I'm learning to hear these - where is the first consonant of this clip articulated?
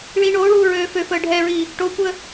retroflex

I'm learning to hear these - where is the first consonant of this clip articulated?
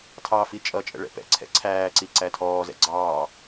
tongue tip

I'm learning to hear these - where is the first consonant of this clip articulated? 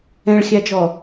retroflex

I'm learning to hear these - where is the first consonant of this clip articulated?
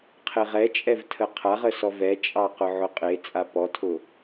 uvula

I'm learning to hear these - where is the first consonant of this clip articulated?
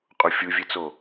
uvula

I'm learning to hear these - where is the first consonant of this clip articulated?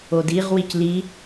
tongue tip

